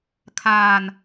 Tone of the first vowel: low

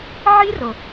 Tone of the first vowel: high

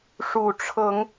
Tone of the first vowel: low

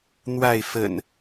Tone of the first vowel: falling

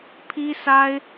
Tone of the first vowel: high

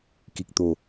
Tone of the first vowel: low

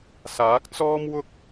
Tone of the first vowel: rising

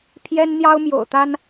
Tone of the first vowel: high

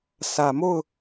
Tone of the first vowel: low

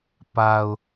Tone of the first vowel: low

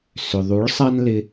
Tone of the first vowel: low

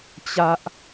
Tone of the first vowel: high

